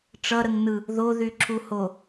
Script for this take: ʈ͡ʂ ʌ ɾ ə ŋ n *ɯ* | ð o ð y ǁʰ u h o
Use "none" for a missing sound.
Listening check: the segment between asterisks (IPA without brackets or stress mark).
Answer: ɯ